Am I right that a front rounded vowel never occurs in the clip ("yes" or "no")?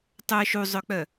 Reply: no